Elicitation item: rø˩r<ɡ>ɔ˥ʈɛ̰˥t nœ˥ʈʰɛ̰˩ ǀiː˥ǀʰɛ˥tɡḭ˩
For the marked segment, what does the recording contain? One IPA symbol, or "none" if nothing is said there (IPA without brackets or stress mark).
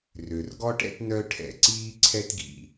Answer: ɡ